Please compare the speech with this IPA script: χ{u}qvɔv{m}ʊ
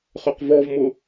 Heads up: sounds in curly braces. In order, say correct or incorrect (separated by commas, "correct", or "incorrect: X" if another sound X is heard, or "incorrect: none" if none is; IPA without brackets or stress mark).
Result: incorrect: ʏ, correct